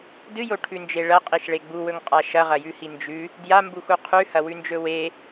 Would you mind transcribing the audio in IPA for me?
d ɨ j o ʈʰ ʉ n d͡ʒ e ɭ ɐ qʼ i ʃ ɭ e ɡ͡b u w ɵ ŋ qʼ a ʃ ɐ ʁ ɐ j ʉ h i n d͡ʒ ʉ | d j a m b u x u qʰ ʉ h ɐ w ʉ n d͡ʒ ɵ w e

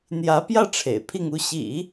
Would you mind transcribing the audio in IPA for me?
n̪ j ä˧˥ p j ä˥˩ ʈ͡ʂʰ ḛ˨˩ ɪ̯ pʰ i˥˧ ŋ u˥˩ ɕ ḭ˨˩˦

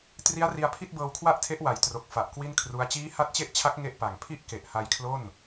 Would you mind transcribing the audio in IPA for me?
t r i˦˥ a̯ r i˧ a̯ pʰ i˥˩ t̚ b ɤː˧ w kʰ w a˥˩ ʔ tʰ e˦˥ ʔ w a˨˩ j t r o˨˩ k̚ f a˨˩ ʔ k w i˥˩ n kʰ r u˦˥ a̯ t͡ɕ iː˦˥ h a˦˥ t̚ t͡ɕ e˦˥ ʔ t͡ɕʰ a˦˥ k̚ ŋ e˥˩ ʔ p a˨˩ ŋ pʰ i˥˩ ʔ k e˨˩ ʔ h a˧ j kʰ l o˥˩ n

